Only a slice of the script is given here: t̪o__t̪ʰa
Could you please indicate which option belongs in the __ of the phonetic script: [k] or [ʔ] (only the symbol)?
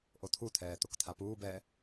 k